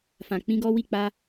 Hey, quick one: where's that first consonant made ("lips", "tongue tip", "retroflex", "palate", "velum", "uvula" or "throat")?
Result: lips